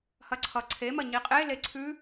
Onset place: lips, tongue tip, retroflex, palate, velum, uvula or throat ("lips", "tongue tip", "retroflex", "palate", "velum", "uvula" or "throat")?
throat